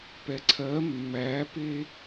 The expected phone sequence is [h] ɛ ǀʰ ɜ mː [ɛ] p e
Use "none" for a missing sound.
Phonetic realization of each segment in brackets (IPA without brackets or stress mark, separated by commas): p, æ